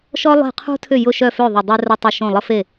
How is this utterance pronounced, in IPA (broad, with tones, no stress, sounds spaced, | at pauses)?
ʃ ɔ˥ lˠ e̤˥˩ qʰ ṳ˥ tʰ ʏ˥˩ j ʊ˥˩ ʃ œ˥˩ f ø˥˩ ðˤ ʏ˥˩ dˤ ø˥ r ɐ˥ tˤ o˥˩ ʃ õ˥˩ lˠ ə˥ f e˥˩